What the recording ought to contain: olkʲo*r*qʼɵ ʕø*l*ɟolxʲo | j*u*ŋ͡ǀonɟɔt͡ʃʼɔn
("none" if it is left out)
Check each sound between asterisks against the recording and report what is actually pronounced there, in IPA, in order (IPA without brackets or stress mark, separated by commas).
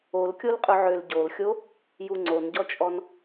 l, l, u